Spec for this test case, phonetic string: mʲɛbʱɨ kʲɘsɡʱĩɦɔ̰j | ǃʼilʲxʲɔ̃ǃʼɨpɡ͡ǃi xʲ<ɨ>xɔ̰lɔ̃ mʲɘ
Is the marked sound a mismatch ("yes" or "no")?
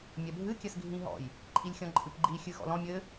no